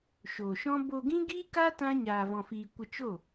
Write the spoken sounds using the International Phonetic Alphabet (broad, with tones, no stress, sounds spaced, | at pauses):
ʃ o˨ ʃ ɔ̃˦ b o˧ ɡ ĩ˦ ɡ iː˦ k a˦ t ã˦ ɲ aː˧ v ɔ̃˧ f iː˧ kʷ ə˧ t͡ʃ o˦˨